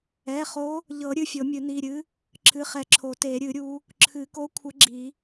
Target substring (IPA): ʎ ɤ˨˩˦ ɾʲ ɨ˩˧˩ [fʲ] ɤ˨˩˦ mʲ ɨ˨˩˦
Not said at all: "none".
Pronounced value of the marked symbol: fʲ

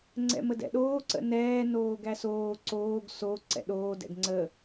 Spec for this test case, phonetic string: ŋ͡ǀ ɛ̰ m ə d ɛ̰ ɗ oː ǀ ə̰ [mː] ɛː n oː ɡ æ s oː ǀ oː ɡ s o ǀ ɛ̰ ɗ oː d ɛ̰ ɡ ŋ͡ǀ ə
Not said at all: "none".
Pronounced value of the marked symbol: n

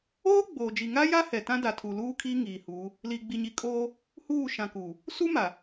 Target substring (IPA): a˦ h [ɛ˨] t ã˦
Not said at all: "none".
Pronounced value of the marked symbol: ɛ˨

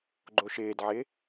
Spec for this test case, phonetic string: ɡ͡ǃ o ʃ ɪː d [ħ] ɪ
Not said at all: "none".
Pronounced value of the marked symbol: ʕ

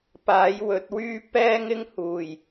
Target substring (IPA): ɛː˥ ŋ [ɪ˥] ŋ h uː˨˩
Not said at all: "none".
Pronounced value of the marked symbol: ɪ˥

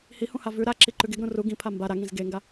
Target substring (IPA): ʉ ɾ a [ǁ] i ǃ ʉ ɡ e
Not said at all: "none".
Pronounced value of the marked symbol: ǁ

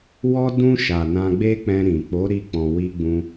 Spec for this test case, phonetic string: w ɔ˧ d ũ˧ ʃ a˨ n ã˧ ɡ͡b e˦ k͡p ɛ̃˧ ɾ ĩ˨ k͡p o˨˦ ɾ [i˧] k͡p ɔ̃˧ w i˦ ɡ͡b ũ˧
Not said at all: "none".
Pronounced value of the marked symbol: i˦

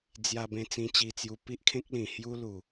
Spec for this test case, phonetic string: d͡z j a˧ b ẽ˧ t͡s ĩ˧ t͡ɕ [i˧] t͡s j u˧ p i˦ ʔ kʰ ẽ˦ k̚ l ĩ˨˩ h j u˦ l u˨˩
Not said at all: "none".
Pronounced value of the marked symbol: i˧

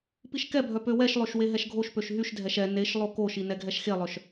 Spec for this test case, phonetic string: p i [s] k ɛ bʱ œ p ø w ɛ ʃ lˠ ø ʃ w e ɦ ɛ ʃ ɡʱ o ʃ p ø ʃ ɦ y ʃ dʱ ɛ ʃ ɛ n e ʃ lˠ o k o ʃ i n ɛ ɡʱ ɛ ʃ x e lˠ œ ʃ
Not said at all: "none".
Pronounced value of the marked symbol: ʃ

